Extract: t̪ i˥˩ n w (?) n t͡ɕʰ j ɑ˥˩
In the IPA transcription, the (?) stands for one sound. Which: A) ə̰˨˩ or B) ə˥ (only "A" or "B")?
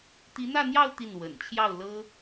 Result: A